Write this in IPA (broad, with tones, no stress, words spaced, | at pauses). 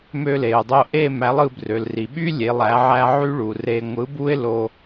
mø˧le˩ʊ̯dˤo˧ ʔe˥˧ mæ˨˥lˠɯ˧brø˩lri˩ ɓy˥ lʲe˨˥lˠæ˨˥ʕæ˥ ʕy˥ɭu˩re˧ ŋʷɯ˨˥bu˥ɪ̯lo˧